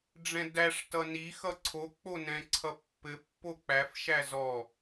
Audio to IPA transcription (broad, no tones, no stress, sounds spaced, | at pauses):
ɖ͡ʐ ɛ̃ d æ ʂ t ʌ n i x ʌ ǀʰ o k͡p o n ɛ̃ ǀʰ ʌ pː ɘ pː o k͡p æ f ʃ æ z ɔ